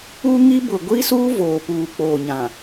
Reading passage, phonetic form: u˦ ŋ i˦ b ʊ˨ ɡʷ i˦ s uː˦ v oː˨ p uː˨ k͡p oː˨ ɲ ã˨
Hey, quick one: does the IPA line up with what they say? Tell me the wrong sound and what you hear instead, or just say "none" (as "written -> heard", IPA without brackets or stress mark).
none